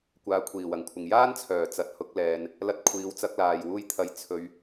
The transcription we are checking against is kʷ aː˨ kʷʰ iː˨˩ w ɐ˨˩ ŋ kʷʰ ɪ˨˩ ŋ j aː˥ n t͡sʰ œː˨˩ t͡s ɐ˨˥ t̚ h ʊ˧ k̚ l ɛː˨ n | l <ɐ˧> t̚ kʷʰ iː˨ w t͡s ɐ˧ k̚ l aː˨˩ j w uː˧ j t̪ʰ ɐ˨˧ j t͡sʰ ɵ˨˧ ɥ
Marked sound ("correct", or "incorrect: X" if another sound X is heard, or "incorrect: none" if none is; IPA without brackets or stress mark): correct